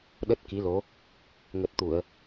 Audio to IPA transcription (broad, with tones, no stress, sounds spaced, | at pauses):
ɗ ə˦˥ t̚ k i˨˦ l o˨˦ | ŋ ə˨˩ t̚ t̪ u˧˩˨ ə̯